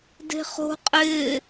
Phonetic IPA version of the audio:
d e̤ χ o̤ qʼ ɪː

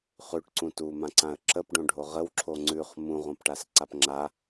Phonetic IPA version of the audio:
χ ʉ ʈ ǀ ũ t u m ã ǀ ã ə̯ ǁ ə p ɖ õ ɖʱ o ʁ ə w ǁʰ o ŋ͡ǀ ʉ χ m ũ ʁ õ p ʈ a s ǀ a p ŋ͡ǁ a

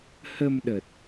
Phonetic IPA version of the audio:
h ə˧ m ɗ ə˨˩ t̚

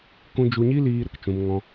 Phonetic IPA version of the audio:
k ũ˦ d͡ʒ u˧ ɲ i˦ l iː˧ ɾ ə˨ k t͡ʃ ũ˧ m ŋ ɔ̃˧

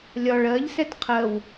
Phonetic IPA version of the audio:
lʲ ɒ ɭ ɜ ʎ s ɛ t qʰ ɜ w

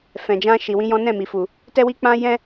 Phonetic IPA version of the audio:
f ɛ̃˧ d͡ʒ ã˦ ʃ i˧ w ĩ˦ j ɔ̃˦ n ɛ̃˦˨ m i˨ f u˨ | t ɛ˦ w i˦ k͡p ã˦ j ɛ̃˦

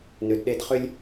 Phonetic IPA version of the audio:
n ʏ˨ d ɗ e˦ d χ ʏ˥ lʲ

